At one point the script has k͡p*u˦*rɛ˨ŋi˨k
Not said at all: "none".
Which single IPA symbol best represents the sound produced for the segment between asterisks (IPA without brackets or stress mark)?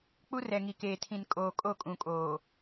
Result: u˦